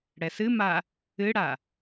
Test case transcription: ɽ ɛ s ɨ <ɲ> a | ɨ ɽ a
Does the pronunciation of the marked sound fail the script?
yes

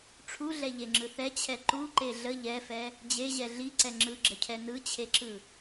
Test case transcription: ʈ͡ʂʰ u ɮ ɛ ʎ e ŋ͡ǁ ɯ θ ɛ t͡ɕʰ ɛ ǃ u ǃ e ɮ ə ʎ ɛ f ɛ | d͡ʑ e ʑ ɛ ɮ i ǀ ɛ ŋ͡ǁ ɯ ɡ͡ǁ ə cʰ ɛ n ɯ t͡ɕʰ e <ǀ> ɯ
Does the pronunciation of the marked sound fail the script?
yes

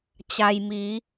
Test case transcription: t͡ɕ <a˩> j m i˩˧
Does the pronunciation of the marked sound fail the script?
no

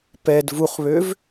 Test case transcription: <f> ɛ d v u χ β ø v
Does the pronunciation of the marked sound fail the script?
yes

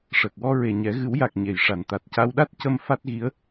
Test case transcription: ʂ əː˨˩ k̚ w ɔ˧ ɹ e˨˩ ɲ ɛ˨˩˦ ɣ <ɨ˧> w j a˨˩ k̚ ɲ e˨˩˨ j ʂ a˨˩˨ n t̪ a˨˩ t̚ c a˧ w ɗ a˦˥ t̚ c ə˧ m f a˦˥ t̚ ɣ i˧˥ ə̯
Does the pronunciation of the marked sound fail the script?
yes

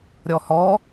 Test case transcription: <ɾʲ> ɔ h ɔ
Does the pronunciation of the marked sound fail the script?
no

